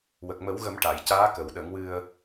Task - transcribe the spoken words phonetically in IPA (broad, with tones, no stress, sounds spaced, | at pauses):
w ə˨˩ k̚ m ə˨˩˦ w ɣ ə˨˩˦ m ʈ a˨˩˨ j c aː˧˥ k ə˨˩˨ w ɗ ə˨˩˦ ŋ w ɨ˧ ə̯